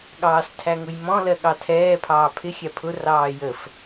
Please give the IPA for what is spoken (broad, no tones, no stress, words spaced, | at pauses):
ɠɑːstʰæŋʊjmɔ̃ lɜɠɑtʰɛː pʰɑːpʰɪ xʲæpʰʊ rɑːjəf